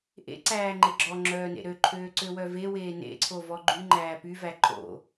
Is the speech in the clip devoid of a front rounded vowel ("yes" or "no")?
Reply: no